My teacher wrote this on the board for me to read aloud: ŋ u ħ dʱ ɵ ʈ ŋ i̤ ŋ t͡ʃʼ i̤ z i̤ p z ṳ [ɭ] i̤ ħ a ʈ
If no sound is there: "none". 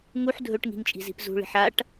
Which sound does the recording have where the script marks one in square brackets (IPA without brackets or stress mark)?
ɭ